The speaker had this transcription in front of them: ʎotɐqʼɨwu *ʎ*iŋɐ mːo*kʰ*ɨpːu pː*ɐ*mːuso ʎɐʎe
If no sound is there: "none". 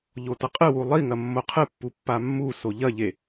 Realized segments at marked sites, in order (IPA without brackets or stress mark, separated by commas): lˠ, qʰ, a